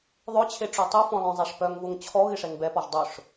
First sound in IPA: ðˤ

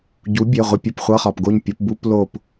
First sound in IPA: ɟ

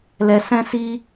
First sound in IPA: l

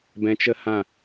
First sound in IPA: b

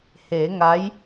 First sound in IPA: h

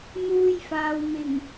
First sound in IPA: n̪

